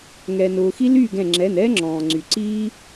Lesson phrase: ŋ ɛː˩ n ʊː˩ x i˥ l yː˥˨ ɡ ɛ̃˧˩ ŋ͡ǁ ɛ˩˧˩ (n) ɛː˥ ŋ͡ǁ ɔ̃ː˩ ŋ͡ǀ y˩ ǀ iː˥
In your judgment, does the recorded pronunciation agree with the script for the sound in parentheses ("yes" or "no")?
yes